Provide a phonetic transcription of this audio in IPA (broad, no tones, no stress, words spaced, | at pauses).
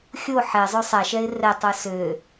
xʲo ħɛ zˤøsˤæ ʃɛɪ̯rɛ tˤœsø